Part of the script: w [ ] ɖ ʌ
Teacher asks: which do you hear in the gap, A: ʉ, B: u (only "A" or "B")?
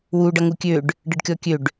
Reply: B